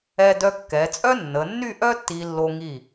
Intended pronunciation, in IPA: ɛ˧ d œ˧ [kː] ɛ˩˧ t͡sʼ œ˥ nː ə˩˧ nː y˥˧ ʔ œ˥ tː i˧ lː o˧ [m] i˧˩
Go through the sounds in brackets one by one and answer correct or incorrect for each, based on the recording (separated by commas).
correct, incorrect